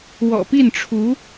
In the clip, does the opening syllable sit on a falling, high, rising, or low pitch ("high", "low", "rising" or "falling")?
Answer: low